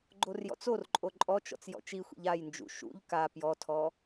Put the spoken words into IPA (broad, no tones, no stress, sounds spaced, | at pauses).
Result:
ɡ͡ǃ o r j ɔ̰ t͡s o r ǃʼ o ǃʼ ɔ t͡ʃ ɔ̰ t͡s j ɔ̰ t͡ʃ i xʷ ḭ ʎ a j n d͡ʒ ṵ ʃ ṵ ʎ k a p j ɔ tʰ ɔ